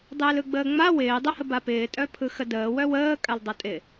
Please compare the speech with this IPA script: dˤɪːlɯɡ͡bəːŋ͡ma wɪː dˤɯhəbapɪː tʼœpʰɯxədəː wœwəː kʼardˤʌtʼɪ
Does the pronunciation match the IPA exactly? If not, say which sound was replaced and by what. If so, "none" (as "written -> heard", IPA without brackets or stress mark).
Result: r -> l